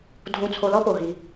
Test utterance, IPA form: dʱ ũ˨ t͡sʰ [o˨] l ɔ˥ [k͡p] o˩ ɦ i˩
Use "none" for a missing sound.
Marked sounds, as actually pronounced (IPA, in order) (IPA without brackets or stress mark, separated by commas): o˨, p